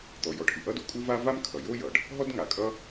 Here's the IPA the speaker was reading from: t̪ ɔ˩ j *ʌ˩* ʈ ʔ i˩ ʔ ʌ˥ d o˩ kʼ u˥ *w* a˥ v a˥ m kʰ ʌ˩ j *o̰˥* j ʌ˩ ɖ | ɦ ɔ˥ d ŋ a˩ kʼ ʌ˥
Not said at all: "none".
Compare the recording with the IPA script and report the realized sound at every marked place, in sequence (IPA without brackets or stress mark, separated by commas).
ɔ˩, v, o˥